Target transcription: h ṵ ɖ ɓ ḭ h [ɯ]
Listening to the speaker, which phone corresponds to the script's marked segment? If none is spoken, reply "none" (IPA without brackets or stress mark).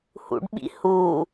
u